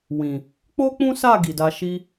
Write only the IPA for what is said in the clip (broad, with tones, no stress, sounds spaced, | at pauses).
w ĩ˨ | k͡p o˦ k͡p ũ˦ s a˦˨ ɡ i˨ d a˧ ʃ i˦